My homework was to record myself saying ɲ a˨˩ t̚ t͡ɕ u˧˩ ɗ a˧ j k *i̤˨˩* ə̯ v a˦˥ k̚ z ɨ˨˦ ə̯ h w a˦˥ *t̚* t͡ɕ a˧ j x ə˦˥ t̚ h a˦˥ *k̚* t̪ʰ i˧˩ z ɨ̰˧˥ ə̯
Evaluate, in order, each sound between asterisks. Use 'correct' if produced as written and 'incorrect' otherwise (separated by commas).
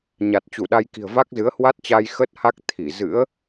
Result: correct, correct, correct